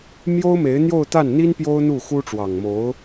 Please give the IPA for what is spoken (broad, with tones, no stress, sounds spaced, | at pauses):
m j o˥ ʊ̯ m e˧˥ ɪ̯ n̪ j o˥˧ ʊ̯ t̪ a˥˩ n n̪ i˥ n p j o˥ ʊ̯ n̪ u˥˩ x u˥ ʈ͡ʂ w ɑ˨˩ ŋ m o˧˥ ʊ̯